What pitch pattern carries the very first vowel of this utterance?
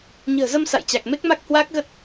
low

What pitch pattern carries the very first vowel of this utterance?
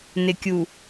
low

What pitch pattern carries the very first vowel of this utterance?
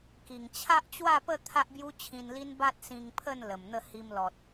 low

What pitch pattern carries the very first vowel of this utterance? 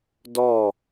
falling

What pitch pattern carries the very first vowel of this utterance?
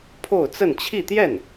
falling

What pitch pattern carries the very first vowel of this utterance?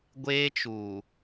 high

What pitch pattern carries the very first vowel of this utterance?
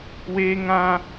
high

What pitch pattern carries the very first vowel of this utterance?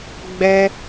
high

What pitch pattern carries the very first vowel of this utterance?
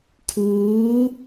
rising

